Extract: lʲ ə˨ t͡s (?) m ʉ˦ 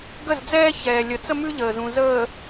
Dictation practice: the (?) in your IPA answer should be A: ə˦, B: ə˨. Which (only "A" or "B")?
A